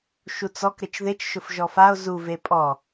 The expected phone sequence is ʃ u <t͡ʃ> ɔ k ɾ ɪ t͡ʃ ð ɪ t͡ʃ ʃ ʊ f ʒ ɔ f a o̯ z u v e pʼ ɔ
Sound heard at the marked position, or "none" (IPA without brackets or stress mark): t͡s